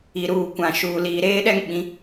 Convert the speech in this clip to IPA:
i˨ ɾ uː˨ kʷ ã˨ ʃ uː˨ l iː˨ ɾ eː˦ ɗ ɛ˦ ŋ ɓ ĩ˨˦

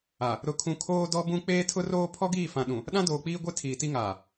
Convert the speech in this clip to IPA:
a˨ | ɾ ʊ˨ kʰ ũ˨ kʰ oː˦ d ɔ˦ b ũ˦ k͡p eː˦ tʰ ʊ˦ r oː˦ pʰ ɔ˦ ɡ iː˦˨ f ã˨ ɗ ũ˨ | ɗ ã˦ d oː˨ k͡p iː˦ ɡʷ e˦ tʰ iː˨ t i˦ ŋ aː˨

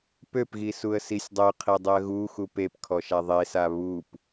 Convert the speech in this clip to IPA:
p ø p ɣ i s u ə̯ s i sʲ dˤ ø qʰ e dˤ y ə̯ ɣ u x u p e p kʰ ɔ ʃ a ðˤ e s a β u p

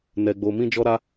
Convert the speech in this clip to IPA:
n ɛ˦ ɡ͡b o˦ m ĩ˦ d͡ʒ ɔ˦ ɾ a˦

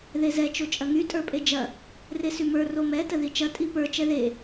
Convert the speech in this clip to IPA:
ð e z ɛ t͡ʃ o t͡ʃʼ ɐ ŋ y tʼ ə˞ pʼ e d͡ʒ ɐ | r e s y m ə˞ r o m ɛ t ə ð i t͡ʃ ɐ tʼ i p ə˞ t͡ʃ ɛ ð e

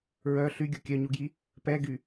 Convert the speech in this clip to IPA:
ɹ œ ɬ y ɡʲ o kʲ œ ɲ u ɡ j i | p ɛ ɡ y

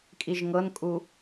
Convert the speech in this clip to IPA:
kʼ i ʒ ŋ ɤ n kʼ u

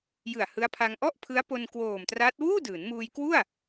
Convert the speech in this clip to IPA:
j ɯ˨˩ a̯ h ɯ˦˥ a̯ pʰ a˧ ŋ ʔ ɔ˥˩ ʔ pʰ ɯ˦˥ a̯ p o˧ n k w oː˨˩ m t r a˦˥ t̚ w uː˥˩ d ɯː˩˦ n m uː˧ j k w u˥˩ a̯

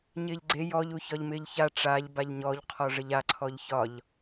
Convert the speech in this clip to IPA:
ɲ ɪː ʎ ɡ͡ǀ e j ɔ ʎ u ç ɒ ʎ m ɪː ʎ ç a ʈ͡ʂ a ʎ b a ʎ ɲ ɔ ʎ qʰ ɔ ʐ ə ʎ a ǀʰ ɔ ʎ ç ɒ ʎ

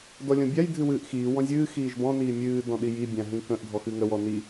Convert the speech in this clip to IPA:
d ɔ lʲ ɔ̃ bʲ a j dʱ ɨ w ɨː ʔ x iː w ɔ̃ zʲ ɨː x iː ʒ b ɔ̃ n iː mʲ ɨː d ɔ̃ ɗ i j i bʲ ã ɦ ĩ k ə̃ ʔ dʱ ɔ x ɨ ŋ ə w ɔ n i

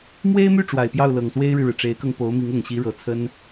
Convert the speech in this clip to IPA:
m w e˥ ɪ̯ m y˥˩ ʈ͡ʂ w a˨˩ ɪ̯ p j ɑ˥˩ ʊ̯ l ɤ˨˩ ŋ s w e˥ ɪ̯ ɻ ɻ̩˨ ɻ ɻ̩˩ ʈ͡ʂ e˧˥ ɪ̯ k ɤ˧ ŋ p o˧˥ ʊ̯ m i˧˥ ŋ ʊ˨˩ ŋ ɕ i˧˥ ɻ ɤ˨˩ t͡sʰ ə˥ n

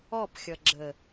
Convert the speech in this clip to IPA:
ɔ p xʲ ʌ ɡ͡ǁ ə

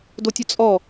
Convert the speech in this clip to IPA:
d o tʲ ʊ t͡sʼ ɔ

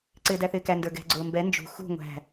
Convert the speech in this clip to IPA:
ǀ ɪː d æ θ ɪː k æ n d ə˞ ɡ ɛ̤ ɡ͡ǀ ʊː m b ɛ n d͡ʒ ṳ x ṳ ŋʷ æ̤

